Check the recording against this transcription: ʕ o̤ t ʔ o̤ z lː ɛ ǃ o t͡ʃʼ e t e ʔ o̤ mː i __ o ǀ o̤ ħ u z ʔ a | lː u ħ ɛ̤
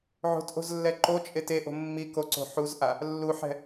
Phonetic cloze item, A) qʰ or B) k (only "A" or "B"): B